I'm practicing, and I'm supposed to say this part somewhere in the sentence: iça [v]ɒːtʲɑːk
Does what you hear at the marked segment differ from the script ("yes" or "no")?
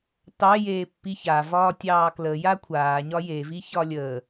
no